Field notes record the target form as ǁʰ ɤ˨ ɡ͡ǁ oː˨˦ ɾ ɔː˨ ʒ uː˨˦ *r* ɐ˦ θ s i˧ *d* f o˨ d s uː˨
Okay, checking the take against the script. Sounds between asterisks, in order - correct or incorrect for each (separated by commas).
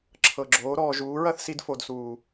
incorrect, correct